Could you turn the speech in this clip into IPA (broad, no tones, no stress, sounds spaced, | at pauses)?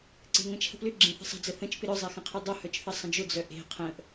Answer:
ǀ e̤ ŋ ə̃ t͡ʃʰ ə̤ p l ʏ ɡ͡ǁ ẽ θ ə̤ sˤ ə̤ d͡z ə θ ə̃ t͡ʃ p ɪ ɾ œ zˤ e x ə̃ qʰ ɪ dˤ ʊ h œ t͡ʃ θ ɐ sˤ ə̃ d͡ʒ ʊ d͡z œ ʔ e̤ qʰ ə̃ ʔ